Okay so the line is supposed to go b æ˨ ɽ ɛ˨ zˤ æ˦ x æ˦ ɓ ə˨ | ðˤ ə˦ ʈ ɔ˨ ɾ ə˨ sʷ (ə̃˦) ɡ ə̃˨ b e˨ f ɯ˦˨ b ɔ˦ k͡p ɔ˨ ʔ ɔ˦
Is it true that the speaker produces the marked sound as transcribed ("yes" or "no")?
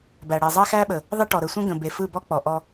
yes